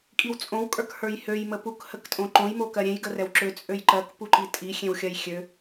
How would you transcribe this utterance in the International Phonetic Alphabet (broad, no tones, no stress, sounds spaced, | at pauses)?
kʼ i w t͡sʼ õ w kʼ ə˞ k h ə˞ j h ø j m ə p u k h ə k tʼ õ ǃ õ j m o k ɜ ɾʲ ẽ j ɡ ə r ɛ w ǁ ø t͡sʼ ø j ǃ ɜ k p u ǃ i tʼ i xʲ ẽ w xʲ ɜ j xʲ ø